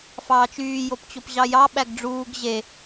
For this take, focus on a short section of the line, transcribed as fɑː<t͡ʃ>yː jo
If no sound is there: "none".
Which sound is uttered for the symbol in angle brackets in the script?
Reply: t͡ʃ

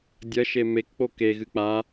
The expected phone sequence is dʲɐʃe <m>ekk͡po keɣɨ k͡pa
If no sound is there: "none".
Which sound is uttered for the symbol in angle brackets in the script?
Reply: m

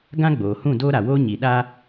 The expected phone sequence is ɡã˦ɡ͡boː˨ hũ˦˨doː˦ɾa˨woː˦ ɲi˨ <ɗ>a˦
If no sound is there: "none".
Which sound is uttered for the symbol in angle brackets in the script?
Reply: ɗ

